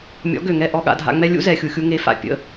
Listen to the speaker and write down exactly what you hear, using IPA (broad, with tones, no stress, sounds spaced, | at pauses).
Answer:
mʲ ɔ̰˩˥ ɡ ø˩ ŋ ɛ˥˩ ʔ ɔ˧ ɠ a̰˧ dʱ a̰˧ ŋ͡m ɛ˥ lʲ ṵ˥ z ɛ˩ xʲ u˩ xʲ u˧ ŋ e˩˥ f a̰˩ pʲ ə̰˥˩